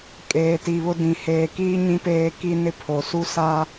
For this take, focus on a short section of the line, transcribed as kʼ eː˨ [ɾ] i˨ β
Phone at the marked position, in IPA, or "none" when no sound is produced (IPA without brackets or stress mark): t